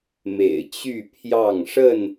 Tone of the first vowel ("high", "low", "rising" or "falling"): low